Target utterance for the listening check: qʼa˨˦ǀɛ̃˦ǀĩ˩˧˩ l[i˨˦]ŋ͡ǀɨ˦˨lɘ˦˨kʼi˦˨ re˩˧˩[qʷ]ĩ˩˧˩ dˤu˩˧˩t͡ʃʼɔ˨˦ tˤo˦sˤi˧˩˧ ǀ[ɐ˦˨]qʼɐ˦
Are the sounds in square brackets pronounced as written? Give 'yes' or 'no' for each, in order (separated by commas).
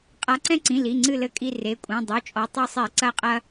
no, no, yes